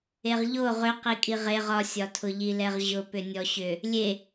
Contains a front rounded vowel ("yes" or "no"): yes